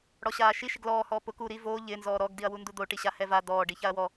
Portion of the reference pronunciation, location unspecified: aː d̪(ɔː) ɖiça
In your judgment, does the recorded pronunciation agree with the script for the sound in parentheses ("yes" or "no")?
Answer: yes